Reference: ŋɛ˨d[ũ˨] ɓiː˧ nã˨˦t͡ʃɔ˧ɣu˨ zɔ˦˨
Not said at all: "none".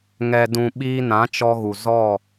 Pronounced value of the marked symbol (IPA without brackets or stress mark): ũ˨